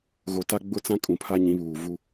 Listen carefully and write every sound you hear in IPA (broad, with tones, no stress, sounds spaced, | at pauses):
ɣ o˨ t a˦ ɡ͡b ʊ˦ t͡s ã˦ kʼ ũ˨ pʰ a˦ ɲ ĩ˨˦ β uː˨ v u˦